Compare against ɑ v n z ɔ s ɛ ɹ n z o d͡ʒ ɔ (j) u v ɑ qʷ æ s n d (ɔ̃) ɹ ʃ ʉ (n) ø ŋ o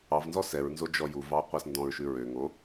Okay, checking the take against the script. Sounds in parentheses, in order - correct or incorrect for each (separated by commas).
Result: correct, correct, incorrect